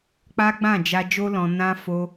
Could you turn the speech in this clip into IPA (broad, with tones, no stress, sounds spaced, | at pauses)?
k͡p a˦ ɡ͡b ã˦˨ d͡ʒ a˧ d͡ʒ o˦ l ɔ̃˧ n ã˦ f o˦